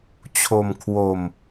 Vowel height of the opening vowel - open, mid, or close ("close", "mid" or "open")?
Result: mid